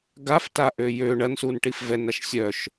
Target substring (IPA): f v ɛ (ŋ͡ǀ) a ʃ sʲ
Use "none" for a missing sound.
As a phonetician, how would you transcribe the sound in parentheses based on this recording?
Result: n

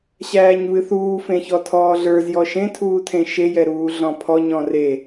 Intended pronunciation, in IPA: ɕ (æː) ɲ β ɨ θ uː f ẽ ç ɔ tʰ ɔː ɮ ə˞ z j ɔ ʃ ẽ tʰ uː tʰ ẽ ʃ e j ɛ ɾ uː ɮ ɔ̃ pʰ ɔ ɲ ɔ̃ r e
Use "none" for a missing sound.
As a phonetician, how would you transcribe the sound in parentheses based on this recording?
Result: æː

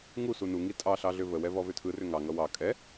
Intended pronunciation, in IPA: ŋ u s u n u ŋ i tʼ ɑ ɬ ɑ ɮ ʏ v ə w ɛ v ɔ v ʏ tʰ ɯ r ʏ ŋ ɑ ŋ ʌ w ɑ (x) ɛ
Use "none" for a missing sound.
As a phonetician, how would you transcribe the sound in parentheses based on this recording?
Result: kʼ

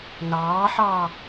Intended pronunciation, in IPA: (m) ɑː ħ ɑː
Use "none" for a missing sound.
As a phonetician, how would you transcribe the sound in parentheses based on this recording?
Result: n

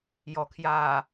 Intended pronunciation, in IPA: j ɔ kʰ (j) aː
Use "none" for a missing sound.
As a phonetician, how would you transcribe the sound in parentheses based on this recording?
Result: j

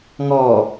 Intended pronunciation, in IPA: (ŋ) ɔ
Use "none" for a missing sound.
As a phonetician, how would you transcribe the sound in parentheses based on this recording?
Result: ŋ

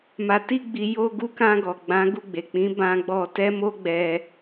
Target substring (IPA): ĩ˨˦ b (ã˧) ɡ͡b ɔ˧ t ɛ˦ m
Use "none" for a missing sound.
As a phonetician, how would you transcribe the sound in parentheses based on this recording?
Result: ã˧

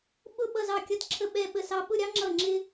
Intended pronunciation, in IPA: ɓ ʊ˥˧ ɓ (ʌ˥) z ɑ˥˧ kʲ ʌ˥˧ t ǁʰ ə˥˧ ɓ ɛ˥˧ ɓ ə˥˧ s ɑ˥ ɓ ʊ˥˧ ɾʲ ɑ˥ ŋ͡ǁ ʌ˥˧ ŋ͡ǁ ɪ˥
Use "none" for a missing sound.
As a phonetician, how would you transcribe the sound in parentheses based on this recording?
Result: ʌ˥˧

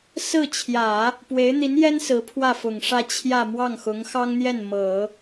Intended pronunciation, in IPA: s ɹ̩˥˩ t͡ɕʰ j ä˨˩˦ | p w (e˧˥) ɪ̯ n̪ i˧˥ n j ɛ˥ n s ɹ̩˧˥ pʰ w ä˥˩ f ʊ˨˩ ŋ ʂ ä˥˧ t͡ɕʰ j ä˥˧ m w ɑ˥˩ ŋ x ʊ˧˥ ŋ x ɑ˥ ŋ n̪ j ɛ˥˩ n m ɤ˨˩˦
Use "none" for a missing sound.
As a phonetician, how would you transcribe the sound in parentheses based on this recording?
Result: e˧˥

